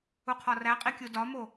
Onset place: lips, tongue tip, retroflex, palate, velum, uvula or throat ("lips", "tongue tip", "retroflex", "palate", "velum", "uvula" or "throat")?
uvula